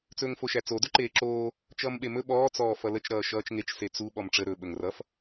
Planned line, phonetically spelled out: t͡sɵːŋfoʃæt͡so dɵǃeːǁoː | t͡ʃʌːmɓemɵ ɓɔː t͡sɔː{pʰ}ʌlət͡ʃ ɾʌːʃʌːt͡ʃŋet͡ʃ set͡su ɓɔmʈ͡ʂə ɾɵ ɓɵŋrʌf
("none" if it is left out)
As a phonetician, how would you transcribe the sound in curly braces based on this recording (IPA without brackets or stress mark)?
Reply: f